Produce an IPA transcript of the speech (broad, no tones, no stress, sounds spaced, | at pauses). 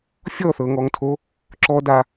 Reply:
fʲ ɔ θ ɤ ŋ ɔ ŋ tʰ o | ǁ ɔ d a